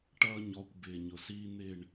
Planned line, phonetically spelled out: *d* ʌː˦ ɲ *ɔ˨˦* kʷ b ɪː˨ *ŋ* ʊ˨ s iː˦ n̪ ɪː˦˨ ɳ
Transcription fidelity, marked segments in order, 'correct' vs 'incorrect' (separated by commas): incorrect, correct, incorrect